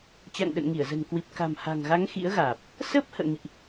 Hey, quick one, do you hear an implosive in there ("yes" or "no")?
yes